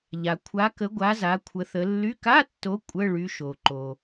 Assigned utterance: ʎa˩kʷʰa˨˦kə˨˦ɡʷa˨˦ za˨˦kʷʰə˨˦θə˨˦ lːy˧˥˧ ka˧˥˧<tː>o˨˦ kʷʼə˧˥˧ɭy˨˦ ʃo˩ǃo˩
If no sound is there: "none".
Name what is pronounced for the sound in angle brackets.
tː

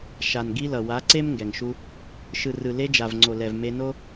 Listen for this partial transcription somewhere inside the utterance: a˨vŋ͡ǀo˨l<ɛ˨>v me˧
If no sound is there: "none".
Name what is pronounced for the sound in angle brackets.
ɛ˨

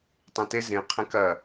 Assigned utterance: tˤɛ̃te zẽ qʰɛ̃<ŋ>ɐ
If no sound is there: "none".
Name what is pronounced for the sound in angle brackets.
k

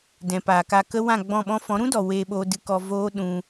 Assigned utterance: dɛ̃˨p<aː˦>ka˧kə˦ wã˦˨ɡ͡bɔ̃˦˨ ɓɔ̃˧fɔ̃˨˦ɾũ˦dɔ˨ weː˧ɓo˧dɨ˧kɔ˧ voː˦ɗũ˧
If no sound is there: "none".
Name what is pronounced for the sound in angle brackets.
aː˨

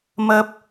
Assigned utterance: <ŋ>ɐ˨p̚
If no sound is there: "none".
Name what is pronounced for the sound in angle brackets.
m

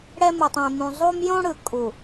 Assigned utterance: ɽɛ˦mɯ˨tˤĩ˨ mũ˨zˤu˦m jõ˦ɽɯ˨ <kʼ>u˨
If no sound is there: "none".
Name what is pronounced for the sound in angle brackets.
kʼ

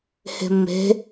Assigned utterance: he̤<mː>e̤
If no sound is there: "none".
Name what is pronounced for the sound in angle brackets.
mː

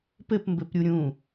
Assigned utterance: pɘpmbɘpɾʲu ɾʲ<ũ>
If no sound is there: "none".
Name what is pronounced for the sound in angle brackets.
ũ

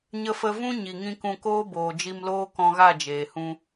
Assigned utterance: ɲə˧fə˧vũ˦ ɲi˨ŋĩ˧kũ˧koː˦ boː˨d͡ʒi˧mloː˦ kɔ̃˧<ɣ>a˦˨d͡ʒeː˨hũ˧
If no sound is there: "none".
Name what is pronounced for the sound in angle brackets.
ɣ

